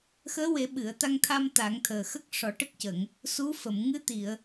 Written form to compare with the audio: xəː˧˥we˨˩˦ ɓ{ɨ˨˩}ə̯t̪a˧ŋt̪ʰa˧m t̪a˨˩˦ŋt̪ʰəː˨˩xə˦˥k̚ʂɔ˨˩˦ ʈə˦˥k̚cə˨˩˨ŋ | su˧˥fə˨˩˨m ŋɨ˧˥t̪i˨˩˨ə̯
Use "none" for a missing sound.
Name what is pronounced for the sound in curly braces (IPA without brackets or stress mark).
ɨ˨˩˨